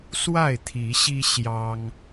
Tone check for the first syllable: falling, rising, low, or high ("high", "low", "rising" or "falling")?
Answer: falling